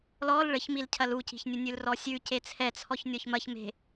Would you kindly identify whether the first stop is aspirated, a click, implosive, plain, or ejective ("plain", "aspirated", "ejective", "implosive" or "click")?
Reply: aspirated